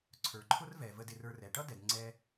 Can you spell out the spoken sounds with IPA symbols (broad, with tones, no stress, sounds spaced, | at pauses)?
ǀʰ ə˞˨ ǃʰ ʊ˦ r v ɛ˨ v ə˧ d ɪ˧ r ə˞˧ r ɛ˨ ʈ ʌ˦ d ɛ˨ d ŋ͡ǀ ɛ˧